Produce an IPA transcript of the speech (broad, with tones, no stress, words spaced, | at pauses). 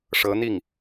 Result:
ʂɤ˧˥n̪i˥˩ŋ